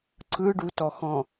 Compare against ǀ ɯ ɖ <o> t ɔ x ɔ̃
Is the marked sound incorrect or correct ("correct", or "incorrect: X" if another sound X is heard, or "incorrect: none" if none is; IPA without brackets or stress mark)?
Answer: incorrect: u